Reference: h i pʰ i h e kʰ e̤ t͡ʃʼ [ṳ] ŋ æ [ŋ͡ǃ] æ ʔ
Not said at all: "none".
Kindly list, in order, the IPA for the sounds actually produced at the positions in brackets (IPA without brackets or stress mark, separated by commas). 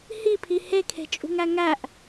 ṳ, ŋ